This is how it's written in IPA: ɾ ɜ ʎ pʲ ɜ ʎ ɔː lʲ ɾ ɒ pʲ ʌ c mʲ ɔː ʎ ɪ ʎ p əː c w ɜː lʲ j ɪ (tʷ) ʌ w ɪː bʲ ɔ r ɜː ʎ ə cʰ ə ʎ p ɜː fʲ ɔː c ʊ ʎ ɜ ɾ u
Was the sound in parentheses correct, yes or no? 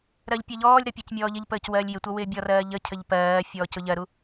yes